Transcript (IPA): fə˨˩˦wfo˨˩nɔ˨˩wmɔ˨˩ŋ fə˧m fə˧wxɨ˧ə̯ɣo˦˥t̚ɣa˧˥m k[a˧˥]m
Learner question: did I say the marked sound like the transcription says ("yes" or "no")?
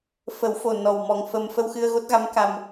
no